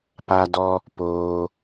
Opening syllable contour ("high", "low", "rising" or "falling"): high